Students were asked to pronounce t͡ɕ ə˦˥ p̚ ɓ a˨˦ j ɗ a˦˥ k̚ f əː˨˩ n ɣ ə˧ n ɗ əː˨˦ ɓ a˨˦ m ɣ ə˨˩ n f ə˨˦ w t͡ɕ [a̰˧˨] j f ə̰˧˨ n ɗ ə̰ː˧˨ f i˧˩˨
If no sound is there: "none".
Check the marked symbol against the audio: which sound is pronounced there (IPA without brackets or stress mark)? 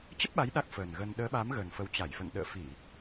a˧˩